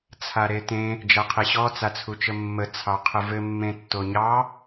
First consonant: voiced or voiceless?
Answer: voiceless